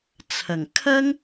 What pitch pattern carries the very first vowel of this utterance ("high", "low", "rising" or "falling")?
low